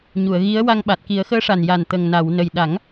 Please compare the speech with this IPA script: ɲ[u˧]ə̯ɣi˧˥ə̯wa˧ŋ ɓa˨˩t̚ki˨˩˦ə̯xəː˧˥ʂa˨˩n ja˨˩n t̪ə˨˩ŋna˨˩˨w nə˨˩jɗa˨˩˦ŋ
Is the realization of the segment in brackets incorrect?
yes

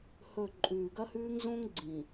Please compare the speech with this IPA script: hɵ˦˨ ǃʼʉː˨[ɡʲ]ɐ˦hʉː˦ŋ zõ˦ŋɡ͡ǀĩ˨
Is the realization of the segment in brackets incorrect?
yes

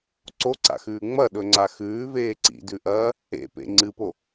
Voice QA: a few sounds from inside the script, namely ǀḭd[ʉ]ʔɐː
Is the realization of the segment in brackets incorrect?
no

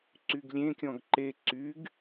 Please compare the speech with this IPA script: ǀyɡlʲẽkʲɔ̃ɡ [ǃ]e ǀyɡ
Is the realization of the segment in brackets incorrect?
no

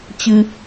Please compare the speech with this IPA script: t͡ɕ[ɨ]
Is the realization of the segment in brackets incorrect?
no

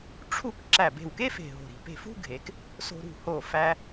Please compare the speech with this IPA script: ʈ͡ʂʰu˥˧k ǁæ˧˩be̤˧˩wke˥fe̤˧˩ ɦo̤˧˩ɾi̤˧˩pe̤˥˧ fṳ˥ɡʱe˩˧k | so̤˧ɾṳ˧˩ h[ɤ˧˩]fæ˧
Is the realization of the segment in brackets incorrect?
yes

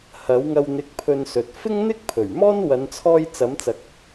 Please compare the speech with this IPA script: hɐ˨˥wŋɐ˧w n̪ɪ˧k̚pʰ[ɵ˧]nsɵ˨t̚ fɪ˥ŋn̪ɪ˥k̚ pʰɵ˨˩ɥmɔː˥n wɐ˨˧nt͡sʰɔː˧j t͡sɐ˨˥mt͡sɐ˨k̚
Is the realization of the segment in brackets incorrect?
no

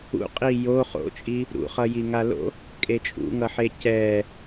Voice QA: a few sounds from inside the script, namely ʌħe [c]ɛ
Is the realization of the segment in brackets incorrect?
no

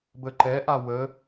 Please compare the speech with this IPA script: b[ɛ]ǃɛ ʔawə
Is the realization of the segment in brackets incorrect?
yes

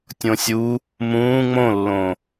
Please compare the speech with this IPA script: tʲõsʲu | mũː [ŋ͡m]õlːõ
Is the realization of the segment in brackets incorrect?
no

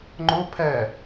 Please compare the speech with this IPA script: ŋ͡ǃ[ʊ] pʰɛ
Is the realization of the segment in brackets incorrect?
no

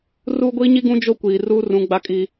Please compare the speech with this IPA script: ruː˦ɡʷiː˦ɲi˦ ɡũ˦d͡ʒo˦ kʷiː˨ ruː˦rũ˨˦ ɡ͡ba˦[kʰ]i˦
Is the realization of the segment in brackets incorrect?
yes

